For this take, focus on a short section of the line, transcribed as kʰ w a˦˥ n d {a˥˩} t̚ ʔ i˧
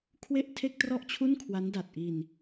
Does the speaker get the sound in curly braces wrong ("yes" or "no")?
yes